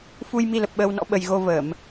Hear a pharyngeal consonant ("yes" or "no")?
no